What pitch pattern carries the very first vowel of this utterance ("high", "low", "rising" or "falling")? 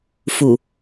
low